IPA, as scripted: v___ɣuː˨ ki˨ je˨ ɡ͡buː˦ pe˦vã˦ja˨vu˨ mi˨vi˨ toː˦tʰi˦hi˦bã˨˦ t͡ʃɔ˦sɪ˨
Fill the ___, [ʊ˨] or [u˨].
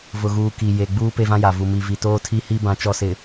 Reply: ʊ˨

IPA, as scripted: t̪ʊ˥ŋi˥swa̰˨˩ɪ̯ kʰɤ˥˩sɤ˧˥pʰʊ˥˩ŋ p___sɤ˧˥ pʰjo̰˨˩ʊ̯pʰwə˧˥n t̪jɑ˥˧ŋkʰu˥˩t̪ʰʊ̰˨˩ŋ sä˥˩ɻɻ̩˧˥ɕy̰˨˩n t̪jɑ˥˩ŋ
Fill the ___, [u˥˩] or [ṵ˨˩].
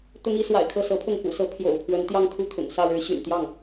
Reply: ṵ˨˩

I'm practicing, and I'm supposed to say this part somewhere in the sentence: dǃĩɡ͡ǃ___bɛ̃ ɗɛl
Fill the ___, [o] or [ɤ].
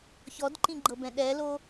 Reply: ɤ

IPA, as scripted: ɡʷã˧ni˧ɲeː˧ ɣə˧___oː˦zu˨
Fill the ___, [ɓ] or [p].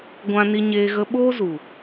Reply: ɓ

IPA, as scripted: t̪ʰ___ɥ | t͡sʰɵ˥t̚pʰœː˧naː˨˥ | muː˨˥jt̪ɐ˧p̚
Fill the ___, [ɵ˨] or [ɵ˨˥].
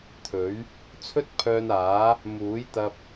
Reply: ɵ˨˥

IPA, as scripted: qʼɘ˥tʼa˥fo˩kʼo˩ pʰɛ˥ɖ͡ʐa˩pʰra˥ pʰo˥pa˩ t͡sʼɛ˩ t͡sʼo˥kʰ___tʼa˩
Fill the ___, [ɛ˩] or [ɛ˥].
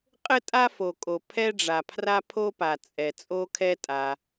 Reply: ɛ˥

